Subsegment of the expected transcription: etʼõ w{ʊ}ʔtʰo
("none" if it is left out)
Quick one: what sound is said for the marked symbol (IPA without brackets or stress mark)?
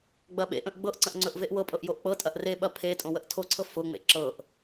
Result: ə